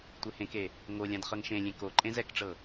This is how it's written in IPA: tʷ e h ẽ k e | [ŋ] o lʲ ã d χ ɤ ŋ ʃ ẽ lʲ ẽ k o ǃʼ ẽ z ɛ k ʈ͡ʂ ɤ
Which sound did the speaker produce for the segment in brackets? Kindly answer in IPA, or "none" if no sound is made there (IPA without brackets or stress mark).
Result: ŋ